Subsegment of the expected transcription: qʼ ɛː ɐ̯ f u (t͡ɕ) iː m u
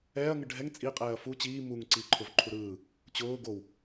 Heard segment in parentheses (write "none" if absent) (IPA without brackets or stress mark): t͡ɕ